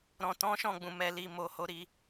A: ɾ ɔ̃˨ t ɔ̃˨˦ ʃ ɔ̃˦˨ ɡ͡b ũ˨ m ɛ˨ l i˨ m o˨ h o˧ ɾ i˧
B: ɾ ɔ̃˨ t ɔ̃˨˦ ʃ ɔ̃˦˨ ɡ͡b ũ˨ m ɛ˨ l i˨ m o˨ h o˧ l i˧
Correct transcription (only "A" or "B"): A